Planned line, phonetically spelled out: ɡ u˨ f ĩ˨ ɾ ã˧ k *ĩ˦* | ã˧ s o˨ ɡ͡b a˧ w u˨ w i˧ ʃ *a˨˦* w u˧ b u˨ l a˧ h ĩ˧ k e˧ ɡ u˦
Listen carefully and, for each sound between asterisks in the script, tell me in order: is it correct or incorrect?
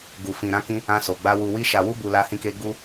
incorrect: ĩ˧, incorrect: a˨

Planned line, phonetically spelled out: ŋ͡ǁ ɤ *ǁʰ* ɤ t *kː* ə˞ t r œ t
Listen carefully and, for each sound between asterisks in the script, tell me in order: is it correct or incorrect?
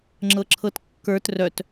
correct, correct

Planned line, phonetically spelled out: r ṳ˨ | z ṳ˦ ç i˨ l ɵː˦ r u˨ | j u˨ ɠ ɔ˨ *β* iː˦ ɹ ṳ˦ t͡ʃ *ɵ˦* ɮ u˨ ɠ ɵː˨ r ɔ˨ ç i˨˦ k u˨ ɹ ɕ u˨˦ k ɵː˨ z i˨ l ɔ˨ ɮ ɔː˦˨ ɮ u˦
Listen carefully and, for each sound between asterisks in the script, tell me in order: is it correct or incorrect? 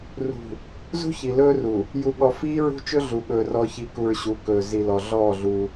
incorrect: f, correct

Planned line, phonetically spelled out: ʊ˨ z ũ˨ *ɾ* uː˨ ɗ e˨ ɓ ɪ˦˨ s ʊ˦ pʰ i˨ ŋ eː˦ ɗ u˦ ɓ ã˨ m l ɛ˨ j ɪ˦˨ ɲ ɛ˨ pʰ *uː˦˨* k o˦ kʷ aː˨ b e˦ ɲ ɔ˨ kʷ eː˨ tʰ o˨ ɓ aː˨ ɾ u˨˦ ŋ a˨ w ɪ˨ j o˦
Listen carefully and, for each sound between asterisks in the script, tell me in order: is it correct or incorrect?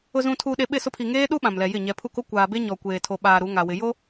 incorrect: tʰ, incorrect: u˦˨

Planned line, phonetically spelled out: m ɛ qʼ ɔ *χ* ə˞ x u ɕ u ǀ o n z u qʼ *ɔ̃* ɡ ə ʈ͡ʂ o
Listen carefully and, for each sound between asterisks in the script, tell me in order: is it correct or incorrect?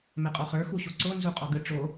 correct, incorrect: ɔ

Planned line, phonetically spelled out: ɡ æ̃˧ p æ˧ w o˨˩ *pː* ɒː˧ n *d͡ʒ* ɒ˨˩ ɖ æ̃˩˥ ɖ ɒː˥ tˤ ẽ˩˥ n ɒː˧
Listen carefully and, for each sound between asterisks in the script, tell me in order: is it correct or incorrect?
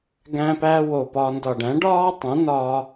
incorrect: p, incorrect: d

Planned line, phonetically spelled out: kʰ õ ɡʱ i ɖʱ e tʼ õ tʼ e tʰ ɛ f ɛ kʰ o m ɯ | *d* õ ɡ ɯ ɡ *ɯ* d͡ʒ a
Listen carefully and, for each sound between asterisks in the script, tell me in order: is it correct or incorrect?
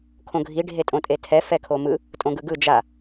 incorrect: tʼ, correct

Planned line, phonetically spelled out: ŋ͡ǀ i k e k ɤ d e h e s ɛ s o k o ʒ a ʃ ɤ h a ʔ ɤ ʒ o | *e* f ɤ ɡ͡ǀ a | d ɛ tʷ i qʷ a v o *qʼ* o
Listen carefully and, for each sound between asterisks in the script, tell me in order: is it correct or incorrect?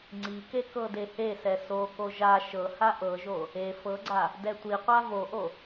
correct, incorrect: ʔ

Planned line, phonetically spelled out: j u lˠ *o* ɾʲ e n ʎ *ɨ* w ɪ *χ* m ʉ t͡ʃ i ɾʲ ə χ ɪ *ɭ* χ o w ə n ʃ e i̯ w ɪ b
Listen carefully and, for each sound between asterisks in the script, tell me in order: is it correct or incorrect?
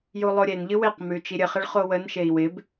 correct, correct, incorrect: q, correct

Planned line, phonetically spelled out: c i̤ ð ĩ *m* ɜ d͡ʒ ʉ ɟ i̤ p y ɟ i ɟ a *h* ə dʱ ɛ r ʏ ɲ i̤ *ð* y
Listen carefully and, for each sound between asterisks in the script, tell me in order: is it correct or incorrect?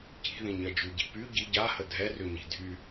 incorrect: ɲ, correct, incorrect: dʱ

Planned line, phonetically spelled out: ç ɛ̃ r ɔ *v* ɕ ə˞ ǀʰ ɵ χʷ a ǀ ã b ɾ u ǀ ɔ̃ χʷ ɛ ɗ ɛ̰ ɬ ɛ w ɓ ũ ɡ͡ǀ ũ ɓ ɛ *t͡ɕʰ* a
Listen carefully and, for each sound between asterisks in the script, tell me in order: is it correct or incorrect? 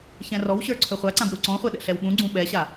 incorrect: w, incorrect: ɕ

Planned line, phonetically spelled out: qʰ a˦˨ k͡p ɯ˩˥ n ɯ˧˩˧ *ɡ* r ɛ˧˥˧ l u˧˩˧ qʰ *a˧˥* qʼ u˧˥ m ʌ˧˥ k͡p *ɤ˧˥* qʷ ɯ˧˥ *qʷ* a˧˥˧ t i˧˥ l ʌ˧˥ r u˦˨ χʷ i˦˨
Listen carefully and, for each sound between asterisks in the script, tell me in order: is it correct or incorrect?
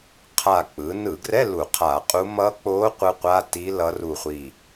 correct, incorrect: a˧˩˧, incorrect: o˧˥, correct

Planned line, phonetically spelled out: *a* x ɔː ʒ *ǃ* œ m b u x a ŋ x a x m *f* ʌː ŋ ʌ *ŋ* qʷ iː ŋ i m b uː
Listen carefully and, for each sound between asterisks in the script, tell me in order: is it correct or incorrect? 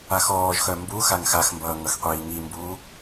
correct, incorrect: x, incorrect: b, incorrect: x

